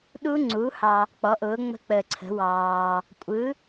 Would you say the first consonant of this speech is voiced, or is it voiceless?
voiced